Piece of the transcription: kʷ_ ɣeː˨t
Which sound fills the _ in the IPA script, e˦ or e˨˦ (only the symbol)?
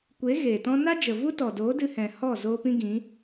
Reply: e˨˦